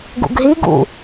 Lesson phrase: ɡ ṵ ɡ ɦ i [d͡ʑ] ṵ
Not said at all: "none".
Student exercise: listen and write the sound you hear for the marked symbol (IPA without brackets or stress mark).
ɡ